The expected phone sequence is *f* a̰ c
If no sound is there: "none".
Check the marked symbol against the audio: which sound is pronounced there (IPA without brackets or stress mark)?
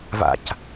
v